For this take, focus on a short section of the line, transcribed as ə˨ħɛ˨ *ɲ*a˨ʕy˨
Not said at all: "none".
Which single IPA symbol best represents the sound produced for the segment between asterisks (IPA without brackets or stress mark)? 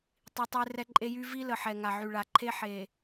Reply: ŋ